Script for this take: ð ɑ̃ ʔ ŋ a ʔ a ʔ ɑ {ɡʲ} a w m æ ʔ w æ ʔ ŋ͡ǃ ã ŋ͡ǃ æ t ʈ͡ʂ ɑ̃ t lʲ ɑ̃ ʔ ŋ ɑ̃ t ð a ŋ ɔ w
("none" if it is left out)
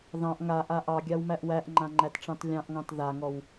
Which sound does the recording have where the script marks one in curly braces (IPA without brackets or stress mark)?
ɡʲ